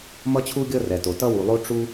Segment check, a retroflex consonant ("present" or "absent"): present